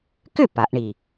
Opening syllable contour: falling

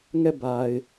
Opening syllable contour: falling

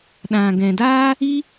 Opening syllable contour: low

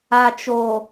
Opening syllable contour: low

